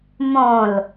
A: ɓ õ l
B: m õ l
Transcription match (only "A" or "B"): B